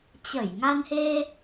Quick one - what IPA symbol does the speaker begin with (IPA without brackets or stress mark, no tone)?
t͡ɕ